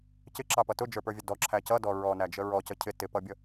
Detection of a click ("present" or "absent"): present